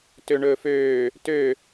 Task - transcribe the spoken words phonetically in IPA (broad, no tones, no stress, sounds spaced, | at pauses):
t ø ɳ ɵː f øː | t ø